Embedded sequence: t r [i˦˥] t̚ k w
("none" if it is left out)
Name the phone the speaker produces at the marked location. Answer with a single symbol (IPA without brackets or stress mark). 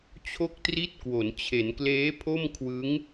i˥˩